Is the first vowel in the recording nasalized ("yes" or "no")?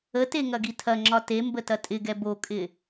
no